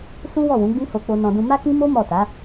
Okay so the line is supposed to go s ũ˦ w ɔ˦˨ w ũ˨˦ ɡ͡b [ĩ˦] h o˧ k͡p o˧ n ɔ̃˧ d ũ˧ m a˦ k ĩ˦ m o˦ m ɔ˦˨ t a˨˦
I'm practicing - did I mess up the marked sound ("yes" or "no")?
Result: no